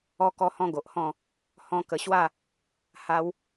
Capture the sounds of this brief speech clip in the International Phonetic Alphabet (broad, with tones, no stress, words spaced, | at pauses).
ɔ˧kɔ˧hɔ̃˧ ɡo˨ʔhɔ̃˥˧ | hɔ̃˧kə˨˩ɕwa˥˧ | ha˧w